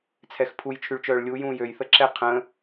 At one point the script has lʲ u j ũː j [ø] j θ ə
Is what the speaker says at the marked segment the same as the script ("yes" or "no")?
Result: yes